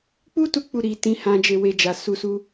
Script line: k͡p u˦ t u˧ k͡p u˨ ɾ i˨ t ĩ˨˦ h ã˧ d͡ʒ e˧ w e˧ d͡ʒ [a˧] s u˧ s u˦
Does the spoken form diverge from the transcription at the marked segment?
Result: yes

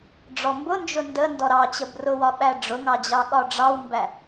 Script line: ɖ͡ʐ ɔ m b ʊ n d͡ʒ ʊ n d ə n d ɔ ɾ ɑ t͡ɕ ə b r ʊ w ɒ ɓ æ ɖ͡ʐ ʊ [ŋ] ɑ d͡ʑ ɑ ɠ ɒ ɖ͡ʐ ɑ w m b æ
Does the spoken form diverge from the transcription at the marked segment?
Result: no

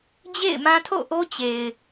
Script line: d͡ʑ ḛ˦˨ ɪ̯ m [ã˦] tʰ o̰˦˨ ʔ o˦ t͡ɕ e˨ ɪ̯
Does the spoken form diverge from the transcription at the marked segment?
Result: no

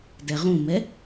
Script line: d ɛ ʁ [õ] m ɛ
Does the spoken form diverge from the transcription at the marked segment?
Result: yes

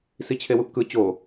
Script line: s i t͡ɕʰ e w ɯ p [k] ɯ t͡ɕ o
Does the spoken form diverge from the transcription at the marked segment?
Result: no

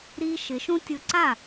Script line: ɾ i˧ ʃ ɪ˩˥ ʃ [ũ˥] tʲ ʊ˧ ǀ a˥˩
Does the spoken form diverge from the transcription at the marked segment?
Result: no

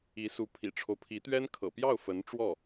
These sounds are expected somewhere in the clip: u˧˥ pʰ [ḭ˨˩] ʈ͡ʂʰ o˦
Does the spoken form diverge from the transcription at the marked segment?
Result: no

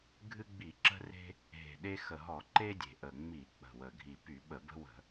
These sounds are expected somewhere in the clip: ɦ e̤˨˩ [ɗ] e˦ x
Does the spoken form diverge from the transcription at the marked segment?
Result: no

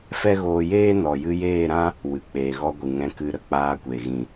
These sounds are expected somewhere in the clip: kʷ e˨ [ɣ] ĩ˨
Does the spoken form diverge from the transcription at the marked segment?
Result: no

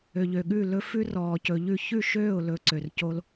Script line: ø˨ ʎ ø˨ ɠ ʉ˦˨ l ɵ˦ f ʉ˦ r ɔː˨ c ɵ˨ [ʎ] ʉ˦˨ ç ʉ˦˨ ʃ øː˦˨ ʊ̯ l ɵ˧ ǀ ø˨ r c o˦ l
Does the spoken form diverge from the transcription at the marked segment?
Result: no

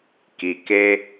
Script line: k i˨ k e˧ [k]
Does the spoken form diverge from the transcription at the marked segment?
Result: yes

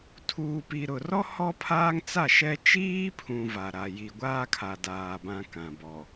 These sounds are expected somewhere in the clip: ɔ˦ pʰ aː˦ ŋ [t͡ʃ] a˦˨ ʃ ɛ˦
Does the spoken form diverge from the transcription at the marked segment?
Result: yes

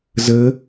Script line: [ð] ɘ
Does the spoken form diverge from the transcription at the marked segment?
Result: yes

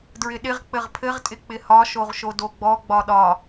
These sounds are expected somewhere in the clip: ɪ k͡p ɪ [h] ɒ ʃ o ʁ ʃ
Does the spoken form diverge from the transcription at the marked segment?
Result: no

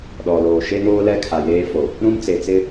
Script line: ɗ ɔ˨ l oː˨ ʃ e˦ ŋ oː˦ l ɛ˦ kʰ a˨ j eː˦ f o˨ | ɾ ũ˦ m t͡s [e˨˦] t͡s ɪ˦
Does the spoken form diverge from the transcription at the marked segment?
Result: yes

